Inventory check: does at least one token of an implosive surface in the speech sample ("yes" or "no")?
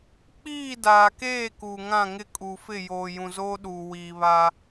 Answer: yes